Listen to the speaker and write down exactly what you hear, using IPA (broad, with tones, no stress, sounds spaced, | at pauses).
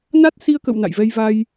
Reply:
n a˦˥ t̚ s i˧ ə̯ k ə̰˧˨ w n a̰˧˨ j v ɛ˧ j v a˧ j